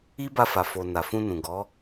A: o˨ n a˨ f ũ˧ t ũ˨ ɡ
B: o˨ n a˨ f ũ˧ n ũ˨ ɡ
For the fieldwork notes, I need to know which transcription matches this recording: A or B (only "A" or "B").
B